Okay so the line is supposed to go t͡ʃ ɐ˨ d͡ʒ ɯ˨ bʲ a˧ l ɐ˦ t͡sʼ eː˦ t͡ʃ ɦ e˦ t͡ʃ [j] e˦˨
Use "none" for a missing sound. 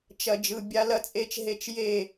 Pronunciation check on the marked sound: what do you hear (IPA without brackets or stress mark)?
j